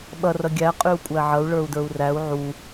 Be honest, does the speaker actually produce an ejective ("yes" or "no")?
yes